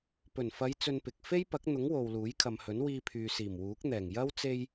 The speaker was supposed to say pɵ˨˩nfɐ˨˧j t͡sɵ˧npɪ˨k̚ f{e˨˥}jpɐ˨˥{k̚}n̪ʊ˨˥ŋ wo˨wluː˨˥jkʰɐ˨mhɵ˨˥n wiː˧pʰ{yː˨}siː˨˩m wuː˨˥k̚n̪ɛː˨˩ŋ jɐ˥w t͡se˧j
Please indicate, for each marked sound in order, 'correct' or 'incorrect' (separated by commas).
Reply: incorrect, correct, correct